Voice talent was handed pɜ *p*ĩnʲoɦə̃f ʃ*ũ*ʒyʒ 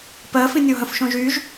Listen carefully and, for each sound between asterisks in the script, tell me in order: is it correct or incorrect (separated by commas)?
incorrect, incorrect